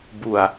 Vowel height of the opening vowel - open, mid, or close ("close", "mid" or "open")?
close